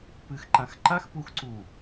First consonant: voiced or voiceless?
voiceless